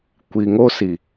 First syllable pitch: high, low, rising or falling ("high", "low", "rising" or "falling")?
low